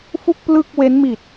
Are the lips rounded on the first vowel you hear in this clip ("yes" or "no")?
yes